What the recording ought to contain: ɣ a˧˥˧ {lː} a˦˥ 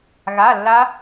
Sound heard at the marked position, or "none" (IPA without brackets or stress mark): lː